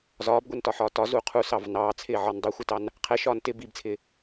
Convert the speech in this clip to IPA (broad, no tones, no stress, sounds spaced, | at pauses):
z ɒː b ɡʷ ɛ n t ɒ ħ ɒː t ɒ z u qʰ u s ɑ v n ɑː t͡sʰ ɪː ʕ ɒ n dˤ i xʷ ɪ t ɑ n | qʰ ɛ ʃ ɒː n t ɪ b i b t͡sʰ ɪː